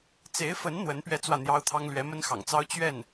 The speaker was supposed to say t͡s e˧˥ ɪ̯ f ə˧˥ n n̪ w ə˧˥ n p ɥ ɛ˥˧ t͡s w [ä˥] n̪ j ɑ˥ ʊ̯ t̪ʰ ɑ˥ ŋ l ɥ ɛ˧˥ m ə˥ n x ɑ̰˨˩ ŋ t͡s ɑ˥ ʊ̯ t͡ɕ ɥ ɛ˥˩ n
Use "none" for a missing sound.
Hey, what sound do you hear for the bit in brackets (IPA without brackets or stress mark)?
ä˥˩